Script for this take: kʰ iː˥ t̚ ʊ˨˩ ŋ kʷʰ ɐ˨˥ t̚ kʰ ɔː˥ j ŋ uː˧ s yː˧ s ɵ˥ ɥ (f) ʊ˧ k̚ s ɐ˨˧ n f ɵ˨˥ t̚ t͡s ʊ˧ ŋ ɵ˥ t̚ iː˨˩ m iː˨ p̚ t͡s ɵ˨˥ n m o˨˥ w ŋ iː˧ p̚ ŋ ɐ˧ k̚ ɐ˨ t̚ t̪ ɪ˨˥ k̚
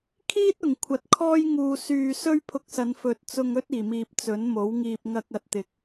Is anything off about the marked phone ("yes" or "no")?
yes